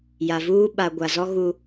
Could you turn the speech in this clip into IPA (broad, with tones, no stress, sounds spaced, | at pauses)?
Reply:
j a˨ v uː˦ ɓ a˨ ɡʷ a˨ z ɔ˦ ɣ u˦